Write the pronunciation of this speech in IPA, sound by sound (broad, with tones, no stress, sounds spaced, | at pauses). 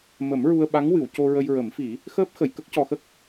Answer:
m ə˨˩˦ m ɹ u˧ ə̯ ɓ a˧˥ ŋ w ɨ˨˩˨ w c o˧ ɹ ə˧ j ɹ ə˨˩˦ m f i˨˩˦ | x əː˦˥ p̚ x ə˨˩˨ j k ə˦˥ k̚ c ɔ˧ x ə˦˥ k̚